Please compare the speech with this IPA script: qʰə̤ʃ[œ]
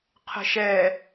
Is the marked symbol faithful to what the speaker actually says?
no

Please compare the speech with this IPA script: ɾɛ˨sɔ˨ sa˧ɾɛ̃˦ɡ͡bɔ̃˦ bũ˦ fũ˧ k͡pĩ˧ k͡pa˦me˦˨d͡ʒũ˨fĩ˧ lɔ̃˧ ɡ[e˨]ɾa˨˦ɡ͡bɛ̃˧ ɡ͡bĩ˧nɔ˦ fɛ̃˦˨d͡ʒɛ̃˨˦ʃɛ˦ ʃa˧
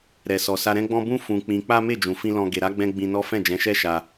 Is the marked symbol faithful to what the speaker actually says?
yes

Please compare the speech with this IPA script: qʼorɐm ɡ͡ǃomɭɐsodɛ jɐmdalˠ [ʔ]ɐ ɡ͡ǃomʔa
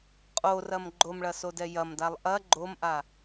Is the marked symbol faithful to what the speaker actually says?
yes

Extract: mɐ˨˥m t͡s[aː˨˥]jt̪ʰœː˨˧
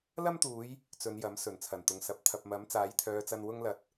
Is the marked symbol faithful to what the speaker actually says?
yes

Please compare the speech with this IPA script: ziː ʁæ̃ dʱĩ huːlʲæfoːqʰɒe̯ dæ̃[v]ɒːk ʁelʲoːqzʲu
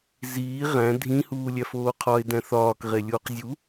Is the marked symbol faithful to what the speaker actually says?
no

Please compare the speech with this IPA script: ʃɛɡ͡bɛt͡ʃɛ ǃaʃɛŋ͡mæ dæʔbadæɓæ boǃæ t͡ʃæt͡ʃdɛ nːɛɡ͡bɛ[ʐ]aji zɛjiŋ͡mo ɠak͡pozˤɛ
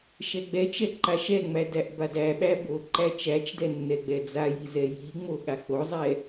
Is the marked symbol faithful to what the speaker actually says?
no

